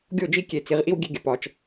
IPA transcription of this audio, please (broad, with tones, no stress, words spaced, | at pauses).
ɡʲo˦˨d͡ʒi˦ kʲe˨t͡si˨ʁʔi˦w ɡʲe˦ɡʲə˨pɒ˦t͡ʃ